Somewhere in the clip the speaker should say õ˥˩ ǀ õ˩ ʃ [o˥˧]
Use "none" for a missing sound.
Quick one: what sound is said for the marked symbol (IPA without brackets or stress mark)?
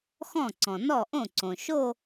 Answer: o˥˧